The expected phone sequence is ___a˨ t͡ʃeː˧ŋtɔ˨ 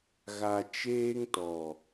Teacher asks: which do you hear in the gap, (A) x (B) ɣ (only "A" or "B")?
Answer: B